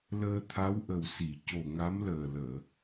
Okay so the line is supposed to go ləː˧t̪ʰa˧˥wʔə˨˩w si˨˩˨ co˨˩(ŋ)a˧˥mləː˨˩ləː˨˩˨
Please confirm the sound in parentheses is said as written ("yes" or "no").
yes